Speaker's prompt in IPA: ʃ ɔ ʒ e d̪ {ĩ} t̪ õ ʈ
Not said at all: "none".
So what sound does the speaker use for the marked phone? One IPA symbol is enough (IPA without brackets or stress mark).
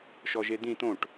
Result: ĩ